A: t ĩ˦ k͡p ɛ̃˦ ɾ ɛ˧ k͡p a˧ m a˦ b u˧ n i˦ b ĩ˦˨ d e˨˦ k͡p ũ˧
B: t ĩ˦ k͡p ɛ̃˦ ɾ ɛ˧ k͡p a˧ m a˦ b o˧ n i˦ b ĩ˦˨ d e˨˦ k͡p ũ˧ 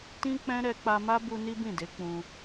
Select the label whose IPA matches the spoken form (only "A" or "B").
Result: A